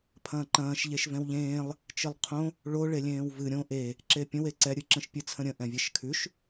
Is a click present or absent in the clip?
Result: present